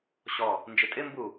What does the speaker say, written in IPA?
ɕ ɔ | n d͡ʒ ɪ tʼ ɪ m b u

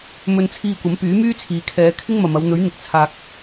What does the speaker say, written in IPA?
m ɵ˧ n t͡sʰ iː˧ kʷ ɐ˨˥ m p yː˨˥ m yː˥ t͡sʰ iː˨ kʰ ɛː˨˧ kʰ ɪ˥ ŋ m ɐ˨ m ɐ˨˧ w n̪ ɵ˨˥ ɥ n̪ ɪ˨ k̚ t͡sʰ aː˨ k̚

